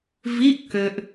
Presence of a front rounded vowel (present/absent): present